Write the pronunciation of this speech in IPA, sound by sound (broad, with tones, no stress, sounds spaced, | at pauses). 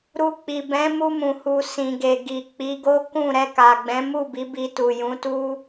ɾ u˧ k͡p i˨ b ɛ̃˨˦ m u˧ m ũ˨ h u˨ s ĩ˨ ɡ e˨ ɡ i˨ k͡p i˨˦ ɡ o˦ k ũ˦˨ ɾ ɛ˧ k a˨ ɡ͡b ɛ̃˨˦ m u˦˨ b i˨˦ b i˧ t u˨ j ũ˨˦ t u˦